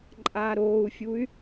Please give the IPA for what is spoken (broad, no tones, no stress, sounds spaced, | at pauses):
ǃʼ aː ɾ oː u̯ fʲ u y̯